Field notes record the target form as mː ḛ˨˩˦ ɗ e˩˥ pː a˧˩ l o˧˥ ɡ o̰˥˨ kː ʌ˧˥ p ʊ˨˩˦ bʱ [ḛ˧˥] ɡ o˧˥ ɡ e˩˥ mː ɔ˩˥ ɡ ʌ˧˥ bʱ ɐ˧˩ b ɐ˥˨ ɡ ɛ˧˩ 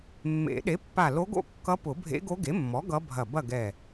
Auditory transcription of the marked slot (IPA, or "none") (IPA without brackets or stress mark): ḛ˧˥